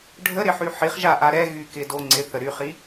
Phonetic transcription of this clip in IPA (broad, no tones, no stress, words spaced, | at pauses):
ɖʱəɾɪħy ħiχʒaʔa ɾɛ ɣykɪdo ŋ͡ǀɪθə ɾyχi